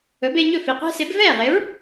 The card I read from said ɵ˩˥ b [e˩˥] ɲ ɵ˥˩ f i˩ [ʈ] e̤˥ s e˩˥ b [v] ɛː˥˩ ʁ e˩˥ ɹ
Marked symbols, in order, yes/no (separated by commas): no, no, yes